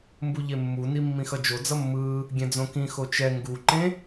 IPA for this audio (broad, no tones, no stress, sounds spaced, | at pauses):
m b u ʎ e mː u n i mː ĩ x ʌ d͡ʒ o d͡z ʌ mː ɯː | ɡʲ ɛ̃ d͡z õ k ĩ x o t͡ʃ ɛ ŋ ɡ u ǃ ẽ